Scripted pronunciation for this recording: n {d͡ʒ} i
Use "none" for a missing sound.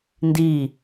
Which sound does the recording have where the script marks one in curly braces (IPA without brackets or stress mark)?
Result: d